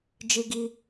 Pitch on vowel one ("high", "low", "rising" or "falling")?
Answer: high